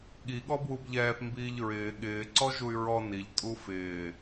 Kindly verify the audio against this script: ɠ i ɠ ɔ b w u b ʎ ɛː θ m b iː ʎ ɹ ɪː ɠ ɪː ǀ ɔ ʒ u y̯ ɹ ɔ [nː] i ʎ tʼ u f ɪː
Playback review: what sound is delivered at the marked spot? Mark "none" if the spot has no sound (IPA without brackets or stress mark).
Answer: n